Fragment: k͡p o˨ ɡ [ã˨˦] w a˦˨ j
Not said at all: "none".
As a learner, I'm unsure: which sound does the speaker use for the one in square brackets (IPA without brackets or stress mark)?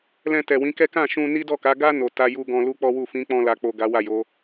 a˨˦